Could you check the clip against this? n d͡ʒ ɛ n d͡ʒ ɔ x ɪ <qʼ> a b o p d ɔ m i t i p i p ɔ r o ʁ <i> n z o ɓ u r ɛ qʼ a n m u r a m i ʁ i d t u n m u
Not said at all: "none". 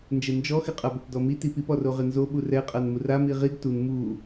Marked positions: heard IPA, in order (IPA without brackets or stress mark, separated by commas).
qʼ, ɪ